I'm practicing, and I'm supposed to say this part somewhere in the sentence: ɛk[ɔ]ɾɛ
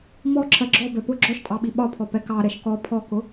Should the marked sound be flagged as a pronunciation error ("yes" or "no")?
yes